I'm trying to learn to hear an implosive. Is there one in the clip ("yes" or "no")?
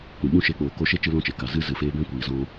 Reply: yes